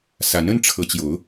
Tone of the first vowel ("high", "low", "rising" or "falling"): rising